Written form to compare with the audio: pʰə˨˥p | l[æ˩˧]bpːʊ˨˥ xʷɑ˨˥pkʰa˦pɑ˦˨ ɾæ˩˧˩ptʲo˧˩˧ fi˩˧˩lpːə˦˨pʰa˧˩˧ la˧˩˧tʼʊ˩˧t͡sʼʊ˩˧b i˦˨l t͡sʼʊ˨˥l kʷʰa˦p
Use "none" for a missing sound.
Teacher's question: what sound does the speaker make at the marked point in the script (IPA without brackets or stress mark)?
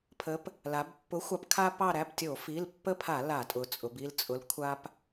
a˩˧